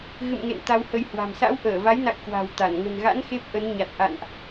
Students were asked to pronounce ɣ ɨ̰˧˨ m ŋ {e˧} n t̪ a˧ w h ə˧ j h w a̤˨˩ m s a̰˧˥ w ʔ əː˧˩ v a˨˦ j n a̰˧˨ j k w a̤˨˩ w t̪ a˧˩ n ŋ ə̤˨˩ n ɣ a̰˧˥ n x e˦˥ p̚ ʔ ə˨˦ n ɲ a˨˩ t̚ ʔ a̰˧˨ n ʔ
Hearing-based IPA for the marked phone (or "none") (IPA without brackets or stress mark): ḛ˧˨